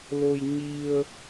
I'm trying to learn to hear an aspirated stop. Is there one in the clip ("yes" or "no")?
no